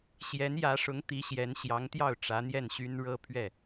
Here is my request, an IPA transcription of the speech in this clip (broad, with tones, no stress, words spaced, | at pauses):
ɕjɛ˧˥njä˧˥ʂʊ˧˥ŋ t̪i˧˥ɕjɛ˧˥n ɕjɑ˧˥ŋt̪jɑ˥˩ʊ̯ ʈ͡ʂä˧˥n̪jɛ˥˩nɕy˥n ɻɤ˥˧ pʰɥɛ˥˩